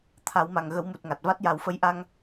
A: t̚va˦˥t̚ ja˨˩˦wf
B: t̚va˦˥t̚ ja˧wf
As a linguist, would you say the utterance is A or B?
A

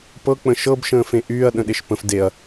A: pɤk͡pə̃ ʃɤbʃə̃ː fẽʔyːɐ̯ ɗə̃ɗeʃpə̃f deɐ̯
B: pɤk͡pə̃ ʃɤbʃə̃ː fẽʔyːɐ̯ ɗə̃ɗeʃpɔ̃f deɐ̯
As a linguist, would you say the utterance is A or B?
A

